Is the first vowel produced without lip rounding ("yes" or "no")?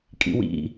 yes